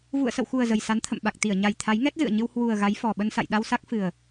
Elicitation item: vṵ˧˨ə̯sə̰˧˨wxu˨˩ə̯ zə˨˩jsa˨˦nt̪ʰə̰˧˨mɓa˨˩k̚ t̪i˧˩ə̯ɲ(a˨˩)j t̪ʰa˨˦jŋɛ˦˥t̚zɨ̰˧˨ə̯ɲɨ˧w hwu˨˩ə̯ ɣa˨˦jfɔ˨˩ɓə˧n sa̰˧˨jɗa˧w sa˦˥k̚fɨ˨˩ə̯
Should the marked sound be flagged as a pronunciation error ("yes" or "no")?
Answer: no